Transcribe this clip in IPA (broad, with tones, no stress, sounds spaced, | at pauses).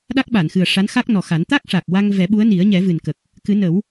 ɗ a˦˥ k̚ ɓ a˨˩˨ n x ɨ˨˩ ə̯ ʂ a˧˥ n x a˦˥ k̚ n ɔ˨˩ x a˨˩˦ n t̪ a˦˥ k̚ ʂ a˨˩ k̚ w a˧ ŋ v ɛ˨˩˦ ɓ u˧˥ ə̯ n i˨˩˦ ə̯ ɲ ɛ˨˩˦ v ɨ˨˩ n k ə˨˩ k̚ | k ɨ˨˩˦ n ə˨˩˦ w